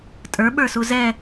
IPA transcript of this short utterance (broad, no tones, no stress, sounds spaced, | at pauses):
tʼ ə˞ ɓ ə˞ s u z ɛ